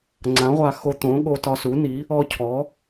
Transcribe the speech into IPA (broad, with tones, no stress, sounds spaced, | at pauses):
ŋ͡ǀ ã˩˥ ʁʷ a˧ x o˧ t̪ õ˩˥ ɠ o˧ t ɒ˧ s u˩˥ n i˩˥ | ɔ˧ cʰ ɔ˩˥